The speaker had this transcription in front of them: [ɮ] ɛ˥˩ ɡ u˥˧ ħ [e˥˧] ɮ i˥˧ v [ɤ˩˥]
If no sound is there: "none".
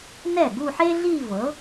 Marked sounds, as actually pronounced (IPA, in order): n, e˥, ɤ˩˥

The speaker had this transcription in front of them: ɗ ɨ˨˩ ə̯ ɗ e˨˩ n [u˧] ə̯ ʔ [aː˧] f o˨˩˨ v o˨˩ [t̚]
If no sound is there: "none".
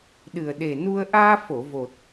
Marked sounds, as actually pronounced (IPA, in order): u˧, aː˧, t̚

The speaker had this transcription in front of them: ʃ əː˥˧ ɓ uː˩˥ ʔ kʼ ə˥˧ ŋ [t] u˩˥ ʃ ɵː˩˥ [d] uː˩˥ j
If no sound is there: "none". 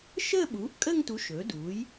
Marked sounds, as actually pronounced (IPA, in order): t, d

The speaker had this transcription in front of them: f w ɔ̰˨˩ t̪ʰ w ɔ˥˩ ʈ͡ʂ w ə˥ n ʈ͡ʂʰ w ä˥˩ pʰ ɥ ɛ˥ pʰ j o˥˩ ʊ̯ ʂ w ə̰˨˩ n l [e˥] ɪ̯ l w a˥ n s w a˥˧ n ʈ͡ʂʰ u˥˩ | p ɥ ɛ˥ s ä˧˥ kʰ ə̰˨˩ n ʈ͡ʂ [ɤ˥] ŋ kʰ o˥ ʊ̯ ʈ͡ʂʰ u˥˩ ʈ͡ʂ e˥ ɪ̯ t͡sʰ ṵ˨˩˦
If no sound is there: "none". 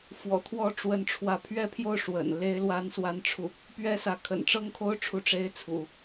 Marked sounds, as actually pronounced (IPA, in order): e˥, ɤ˥

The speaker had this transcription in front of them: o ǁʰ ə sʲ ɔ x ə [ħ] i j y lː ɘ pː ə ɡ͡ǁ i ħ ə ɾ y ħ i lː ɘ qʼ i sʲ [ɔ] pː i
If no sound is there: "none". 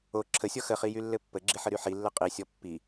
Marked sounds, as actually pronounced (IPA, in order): χ, ɔ

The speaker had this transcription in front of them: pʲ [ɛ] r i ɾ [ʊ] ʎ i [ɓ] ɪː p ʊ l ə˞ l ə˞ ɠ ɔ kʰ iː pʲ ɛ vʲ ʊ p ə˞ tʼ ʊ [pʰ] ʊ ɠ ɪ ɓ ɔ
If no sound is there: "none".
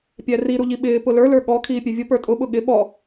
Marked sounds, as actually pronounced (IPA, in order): æ, u, ɓ, ɓ

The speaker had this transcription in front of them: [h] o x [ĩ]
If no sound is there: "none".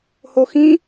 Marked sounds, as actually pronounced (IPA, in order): h, ĩ

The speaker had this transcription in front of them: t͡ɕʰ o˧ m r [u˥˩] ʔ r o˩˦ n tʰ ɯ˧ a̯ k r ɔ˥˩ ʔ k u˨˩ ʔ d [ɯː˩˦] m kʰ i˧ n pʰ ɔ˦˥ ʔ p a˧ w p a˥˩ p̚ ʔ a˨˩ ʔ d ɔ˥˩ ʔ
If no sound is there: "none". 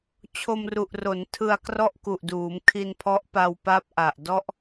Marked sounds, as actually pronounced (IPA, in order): u˨˩, uː˩˦

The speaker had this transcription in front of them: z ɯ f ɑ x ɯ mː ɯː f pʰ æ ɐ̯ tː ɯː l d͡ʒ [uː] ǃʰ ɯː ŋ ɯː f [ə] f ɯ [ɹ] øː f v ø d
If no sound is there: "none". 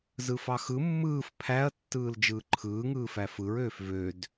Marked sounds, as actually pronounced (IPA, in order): ɯː, æ, ɹ

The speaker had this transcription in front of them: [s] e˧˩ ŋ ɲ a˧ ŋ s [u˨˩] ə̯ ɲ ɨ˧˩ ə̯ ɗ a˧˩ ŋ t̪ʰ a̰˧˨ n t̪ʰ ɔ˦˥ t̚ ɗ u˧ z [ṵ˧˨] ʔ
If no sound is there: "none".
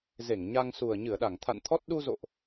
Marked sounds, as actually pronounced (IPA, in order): z, u˨˩, o̰˧˨

